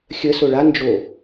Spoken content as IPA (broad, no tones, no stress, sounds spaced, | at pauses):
xʲ ə s o ɭ a n d͡ʒ o